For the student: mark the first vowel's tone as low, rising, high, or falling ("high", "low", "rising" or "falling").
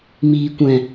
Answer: low